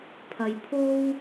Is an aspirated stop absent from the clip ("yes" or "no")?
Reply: no